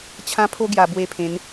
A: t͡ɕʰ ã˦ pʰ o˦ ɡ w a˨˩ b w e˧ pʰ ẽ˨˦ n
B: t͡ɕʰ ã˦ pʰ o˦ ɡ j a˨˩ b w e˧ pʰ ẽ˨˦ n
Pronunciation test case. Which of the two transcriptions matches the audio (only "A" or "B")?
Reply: B